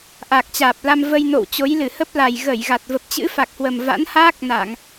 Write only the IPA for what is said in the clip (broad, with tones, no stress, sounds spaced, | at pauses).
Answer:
ʔ a˨˩ k̚ t͡ɕ aː˨˩ p̚ l a˧ m v ə˧ j n o̰˧˨ w t͡ɕ o˨˦ j l ɨ˧˩ h ə˦˥ p̚ l a˨˩ j ɣ ə˧˩ j ɣ a˨˩ t̚ v ə˨˩ p̚ t͡ɕ ɨ̰˧˥ f a˨˩ k̚ h w ə˨˩ m v a̰˧˥ n h aː˦˥ k̚ n a˧˩˨ ŋ